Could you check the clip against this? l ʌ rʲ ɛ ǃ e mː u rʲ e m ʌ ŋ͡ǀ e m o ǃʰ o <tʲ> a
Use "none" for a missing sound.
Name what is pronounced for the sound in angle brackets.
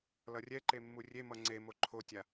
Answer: tʲ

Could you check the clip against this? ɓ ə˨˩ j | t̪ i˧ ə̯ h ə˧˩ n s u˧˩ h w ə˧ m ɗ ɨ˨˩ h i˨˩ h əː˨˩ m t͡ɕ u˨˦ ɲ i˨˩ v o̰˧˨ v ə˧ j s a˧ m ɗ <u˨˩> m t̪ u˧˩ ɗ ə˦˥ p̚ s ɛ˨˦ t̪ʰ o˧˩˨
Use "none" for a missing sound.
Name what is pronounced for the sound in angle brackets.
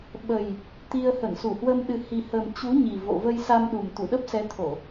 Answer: u˨˩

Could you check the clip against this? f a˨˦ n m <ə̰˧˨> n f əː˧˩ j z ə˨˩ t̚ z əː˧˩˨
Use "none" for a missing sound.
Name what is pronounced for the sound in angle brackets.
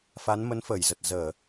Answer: ə˨˦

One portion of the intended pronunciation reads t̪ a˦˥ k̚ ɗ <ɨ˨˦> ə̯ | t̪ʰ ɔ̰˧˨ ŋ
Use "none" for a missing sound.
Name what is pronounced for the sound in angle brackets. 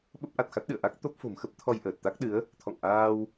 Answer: ɨ˨˦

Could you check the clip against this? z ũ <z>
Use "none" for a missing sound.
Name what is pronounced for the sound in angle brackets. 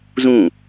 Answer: none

